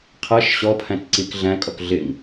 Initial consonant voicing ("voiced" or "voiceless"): voiceless